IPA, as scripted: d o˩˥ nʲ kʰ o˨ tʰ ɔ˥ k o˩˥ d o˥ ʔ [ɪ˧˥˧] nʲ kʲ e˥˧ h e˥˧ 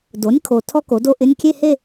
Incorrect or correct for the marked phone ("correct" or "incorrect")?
correct